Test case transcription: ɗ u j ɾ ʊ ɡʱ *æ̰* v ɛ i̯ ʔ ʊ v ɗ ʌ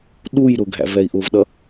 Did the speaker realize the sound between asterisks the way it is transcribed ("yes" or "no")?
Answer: yes